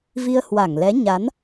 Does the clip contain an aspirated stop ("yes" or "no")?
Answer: no